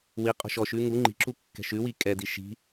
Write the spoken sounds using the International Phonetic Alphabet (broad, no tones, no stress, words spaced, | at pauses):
wiqʼo̤ʃ ɔʃʉ ŋu ŋ͡ǃi̤ǁu kːɛ̤ʃʉwi kʼɛdi ʃi̤